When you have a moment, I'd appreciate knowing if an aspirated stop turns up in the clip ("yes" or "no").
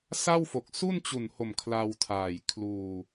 yes